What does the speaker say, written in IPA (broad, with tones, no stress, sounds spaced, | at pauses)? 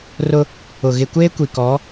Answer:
r ʊ˦ | ʊ˨ ɣ ɪ˨ kʷ eː˦ kʷ i˨ k ɔ˨˦